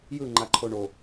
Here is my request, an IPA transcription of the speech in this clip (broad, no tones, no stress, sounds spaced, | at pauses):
j ɯ ŋ͡ǃ a ǃʰ o ɳ o